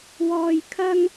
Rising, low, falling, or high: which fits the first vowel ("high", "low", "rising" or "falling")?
high